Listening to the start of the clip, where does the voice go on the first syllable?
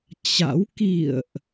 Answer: rising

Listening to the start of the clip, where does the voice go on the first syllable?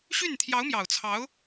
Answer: falling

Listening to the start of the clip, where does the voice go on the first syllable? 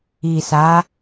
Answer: low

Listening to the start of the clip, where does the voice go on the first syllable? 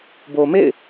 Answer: low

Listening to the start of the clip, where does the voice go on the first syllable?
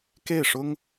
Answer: falling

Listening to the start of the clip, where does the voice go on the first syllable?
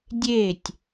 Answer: falling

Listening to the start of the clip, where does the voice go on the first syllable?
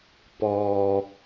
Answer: low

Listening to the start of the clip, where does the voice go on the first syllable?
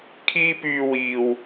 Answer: high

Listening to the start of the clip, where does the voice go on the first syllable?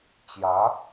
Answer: rising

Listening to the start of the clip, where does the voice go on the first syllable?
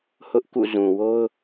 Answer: high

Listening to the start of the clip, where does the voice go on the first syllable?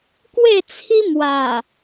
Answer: falling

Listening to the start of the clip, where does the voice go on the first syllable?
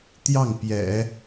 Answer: falling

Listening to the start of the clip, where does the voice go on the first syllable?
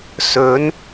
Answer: rising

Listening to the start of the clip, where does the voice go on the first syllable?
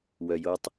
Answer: low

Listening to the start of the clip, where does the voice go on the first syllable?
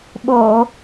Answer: low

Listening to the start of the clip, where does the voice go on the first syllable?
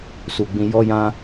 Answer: low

